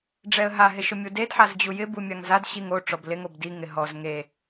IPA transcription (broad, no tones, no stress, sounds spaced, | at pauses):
ɖ͡ʐ ɛ ə̯ ɦ a ɦ ɪ ʃ ʊ mʲ u d e d ħ a z d͡ʑ u j ɪ b u mʲ a ŋ z a d ɕ i ŋ o ʈ͡ʂ ɔ b l ɪ ŋ o b d i ŋ ɪ ɦ ɔ z ŋ e